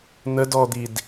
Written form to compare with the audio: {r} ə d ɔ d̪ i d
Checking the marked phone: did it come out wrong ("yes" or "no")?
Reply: yes